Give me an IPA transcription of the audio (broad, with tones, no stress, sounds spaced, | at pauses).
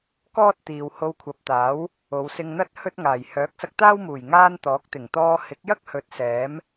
k ɔː˥ t̚ t̪ iː˨ w h o˧ w kʷʰ ɐ˨˥ p̚ t̪ aː˨˥ w | o˨˧ w s ɪ˧ ŋ n̪ ɐ˥ t̚ h ɵ˥ t̚ ŋ aː˨˩ j h œː˨˥ k̚ s ɐ˧ k̚ t̪ aː˥ w m uː˨˩ j ŋ aː˥ n t̪ ɔː˨˥ k̚ t̪ ɪ˨˩ ŋ t̪ ɔː˧ h ɪ˨˥ k̚ j ɐ˥ k̚ h ɵ˨˥ t̚ s ɛː˨˥ m